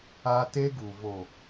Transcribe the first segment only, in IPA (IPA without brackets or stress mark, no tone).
a